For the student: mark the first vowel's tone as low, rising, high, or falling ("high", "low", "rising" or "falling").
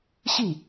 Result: falling